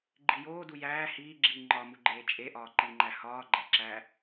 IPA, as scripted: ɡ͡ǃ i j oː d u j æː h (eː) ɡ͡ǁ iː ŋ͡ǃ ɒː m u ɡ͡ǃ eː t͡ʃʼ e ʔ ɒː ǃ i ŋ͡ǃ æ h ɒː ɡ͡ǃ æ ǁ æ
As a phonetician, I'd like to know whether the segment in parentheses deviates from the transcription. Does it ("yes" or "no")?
yes